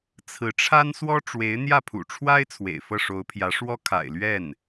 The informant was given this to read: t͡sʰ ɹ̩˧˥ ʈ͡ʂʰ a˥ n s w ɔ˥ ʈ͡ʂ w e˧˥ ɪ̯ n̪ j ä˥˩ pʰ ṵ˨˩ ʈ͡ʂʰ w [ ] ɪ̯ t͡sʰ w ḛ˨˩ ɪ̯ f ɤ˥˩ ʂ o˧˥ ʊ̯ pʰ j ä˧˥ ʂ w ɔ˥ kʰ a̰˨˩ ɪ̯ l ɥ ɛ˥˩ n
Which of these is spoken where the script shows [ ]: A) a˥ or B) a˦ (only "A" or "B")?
A